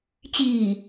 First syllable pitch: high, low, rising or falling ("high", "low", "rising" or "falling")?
low